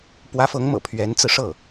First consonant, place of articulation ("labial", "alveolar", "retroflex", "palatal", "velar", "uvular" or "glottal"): labial